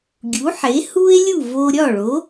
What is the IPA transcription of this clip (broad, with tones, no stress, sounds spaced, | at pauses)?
ɡʲ u˩˥ ħ e˩˥ h u˥ e̯ lʲ u˥˩ v o˧ ɾʲ ɒ˥˩ ɭ o˩˥